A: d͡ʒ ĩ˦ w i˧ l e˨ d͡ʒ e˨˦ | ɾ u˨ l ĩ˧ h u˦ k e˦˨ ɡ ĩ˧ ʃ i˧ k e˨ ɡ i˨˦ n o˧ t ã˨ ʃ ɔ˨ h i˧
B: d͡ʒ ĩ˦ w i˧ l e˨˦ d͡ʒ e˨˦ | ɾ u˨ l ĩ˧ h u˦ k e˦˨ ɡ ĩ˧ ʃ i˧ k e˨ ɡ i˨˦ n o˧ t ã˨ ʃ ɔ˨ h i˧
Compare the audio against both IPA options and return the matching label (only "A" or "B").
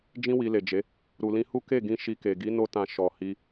A